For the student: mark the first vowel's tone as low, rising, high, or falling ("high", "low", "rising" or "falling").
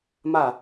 falling